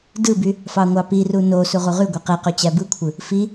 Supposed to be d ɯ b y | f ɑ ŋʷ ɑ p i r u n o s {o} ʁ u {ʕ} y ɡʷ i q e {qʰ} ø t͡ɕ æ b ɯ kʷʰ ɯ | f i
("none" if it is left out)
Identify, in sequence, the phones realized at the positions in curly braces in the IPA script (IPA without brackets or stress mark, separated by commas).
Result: u, ʁ, q